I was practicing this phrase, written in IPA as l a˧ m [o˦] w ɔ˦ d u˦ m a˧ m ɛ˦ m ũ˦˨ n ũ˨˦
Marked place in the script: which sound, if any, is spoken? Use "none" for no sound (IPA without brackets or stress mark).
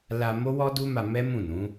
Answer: o˦